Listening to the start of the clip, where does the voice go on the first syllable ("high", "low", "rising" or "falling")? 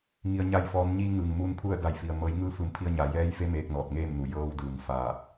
low